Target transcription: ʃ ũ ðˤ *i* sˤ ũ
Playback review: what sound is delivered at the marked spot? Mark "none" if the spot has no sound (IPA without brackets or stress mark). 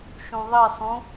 i